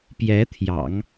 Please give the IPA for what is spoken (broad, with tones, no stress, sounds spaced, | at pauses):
p j ɛ˧˥ t̪ʰ j ɑ̰˨˩˦ ŋ